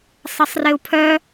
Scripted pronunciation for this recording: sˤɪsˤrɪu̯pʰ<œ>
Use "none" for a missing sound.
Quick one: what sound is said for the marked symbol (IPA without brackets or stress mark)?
œ